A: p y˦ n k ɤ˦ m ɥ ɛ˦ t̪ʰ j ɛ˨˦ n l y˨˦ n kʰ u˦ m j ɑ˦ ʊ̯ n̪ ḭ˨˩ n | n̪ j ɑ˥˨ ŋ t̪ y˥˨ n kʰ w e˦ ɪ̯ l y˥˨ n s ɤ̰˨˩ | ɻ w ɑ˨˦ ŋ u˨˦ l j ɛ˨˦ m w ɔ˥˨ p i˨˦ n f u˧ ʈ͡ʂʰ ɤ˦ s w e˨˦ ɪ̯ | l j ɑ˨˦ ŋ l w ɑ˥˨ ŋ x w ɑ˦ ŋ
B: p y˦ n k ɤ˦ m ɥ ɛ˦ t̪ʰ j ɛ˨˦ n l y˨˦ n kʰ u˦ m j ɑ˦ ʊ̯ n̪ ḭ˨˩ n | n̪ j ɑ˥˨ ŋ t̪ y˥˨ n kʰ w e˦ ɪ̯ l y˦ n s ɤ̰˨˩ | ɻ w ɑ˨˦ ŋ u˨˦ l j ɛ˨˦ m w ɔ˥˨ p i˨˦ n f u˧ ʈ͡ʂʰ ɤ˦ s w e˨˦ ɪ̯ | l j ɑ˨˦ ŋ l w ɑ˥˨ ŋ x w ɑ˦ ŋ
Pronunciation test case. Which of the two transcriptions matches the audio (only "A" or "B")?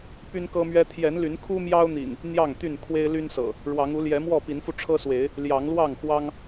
B